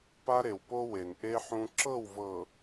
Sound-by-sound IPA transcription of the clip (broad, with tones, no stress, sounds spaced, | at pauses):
p a˦ ɾ e˨ w p o˦ w e˨ n ʔ e˦ ħ ũ˦ ǁ ɤ˦˨ w v ɤ˨